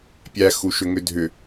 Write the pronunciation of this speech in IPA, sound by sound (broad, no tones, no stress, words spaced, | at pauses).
pʲæ xuʃʏŋʏdʱʏ